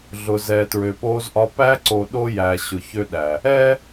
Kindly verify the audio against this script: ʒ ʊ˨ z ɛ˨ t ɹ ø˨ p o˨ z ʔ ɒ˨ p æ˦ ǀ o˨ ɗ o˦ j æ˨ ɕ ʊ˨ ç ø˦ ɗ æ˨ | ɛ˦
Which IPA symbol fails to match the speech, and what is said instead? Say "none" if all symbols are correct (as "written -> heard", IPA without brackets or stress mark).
ʒ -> ɮ